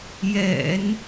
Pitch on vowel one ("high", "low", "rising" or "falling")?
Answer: low